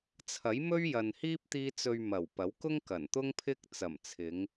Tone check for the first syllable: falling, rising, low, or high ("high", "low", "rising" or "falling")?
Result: rising